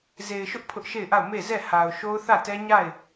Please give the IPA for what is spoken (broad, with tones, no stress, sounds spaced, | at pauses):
z e˨ ɪ̯ ʃ ʊ˦ ʔ pʰ ʊ˦ ʔ ʃ e˦˨ ɪ̯ ʔ a˦˨ ʊ̯ m e˦˨ z ɛ˦˨ h a˨ ʊ̯ ʃ o˦ ʊ̯ θ ä˦˨ t ɛ˦ ɲ a˦˨ ɪ̯